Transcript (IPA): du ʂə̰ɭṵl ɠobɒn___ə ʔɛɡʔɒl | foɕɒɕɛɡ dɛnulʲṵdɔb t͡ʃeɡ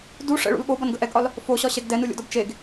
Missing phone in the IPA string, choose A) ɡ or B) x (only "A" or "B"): A